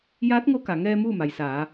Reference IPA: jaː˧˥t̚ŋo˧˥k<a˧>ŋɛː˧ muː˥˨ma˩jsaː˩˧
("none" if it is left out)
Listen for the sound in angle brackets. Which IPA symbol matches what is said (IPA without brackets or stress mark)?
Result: a˩